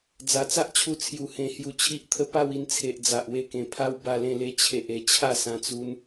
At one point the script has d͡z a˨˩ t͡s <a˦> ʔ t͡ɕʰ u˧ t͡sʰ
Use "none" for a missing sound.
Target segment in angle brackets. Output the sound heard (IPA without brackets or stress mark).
a˦